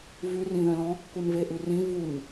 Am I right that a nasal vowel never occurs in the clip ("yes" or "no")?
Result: no